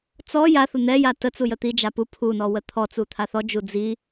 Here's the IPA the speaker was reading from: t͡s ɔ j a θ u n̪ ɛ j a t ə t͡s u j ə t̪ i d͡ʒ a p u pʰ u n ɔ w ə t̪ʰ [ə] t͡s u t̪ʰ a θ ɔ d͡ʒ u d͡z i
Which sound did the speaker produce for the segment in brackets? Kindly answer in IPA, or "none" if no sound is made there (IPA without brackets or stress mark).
ɔ